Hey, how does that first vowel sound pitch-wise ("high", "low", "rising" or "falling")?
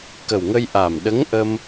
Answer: low